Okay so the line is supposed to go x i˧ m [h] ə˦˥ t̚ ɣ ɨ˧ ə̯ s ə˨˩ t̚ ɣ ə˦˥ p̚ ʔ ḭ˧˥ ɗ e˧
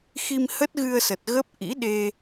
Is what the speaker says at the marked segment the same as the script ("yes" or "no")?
yes